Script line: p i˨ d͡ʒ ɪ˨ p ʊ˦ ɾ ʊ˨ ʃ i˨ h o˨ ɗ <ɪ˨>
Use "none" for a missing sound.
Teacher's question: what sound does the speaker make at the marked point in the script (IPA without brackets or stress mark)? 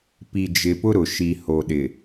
ɪ˨